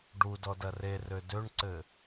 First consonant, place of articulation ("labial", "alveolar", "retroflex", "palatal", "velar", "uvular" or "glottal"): retroflex